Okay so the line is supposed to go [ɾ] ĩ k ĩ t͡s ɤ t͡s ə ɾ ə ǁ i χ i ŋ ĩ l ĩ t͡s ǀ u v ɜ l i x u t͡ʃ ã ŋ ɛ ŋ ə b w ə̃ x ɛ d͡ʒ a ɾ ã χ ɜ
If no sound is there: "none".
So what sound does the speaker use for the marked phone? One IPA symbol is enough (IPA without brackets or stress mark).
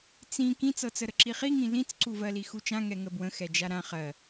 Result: t͡s